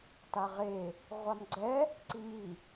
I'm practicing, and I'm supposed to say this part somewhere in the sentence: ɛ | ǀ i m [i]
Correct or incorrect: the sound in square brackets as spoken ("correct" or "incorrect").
correct